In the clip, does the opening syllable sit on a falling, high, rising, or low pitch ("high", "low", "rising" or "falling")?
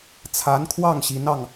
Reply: rising